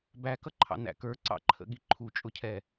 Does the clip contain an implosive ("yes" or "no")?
yes